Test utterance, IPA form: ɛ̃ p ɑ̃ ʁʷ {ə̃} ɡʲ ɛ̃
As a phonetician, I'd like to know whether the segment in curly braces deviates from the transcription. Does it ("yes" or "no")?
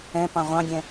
yes